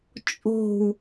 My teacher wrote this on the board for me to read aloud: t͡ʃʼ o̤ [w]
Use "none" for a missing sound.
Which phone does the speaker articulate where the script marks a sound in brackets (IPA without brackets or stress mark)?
w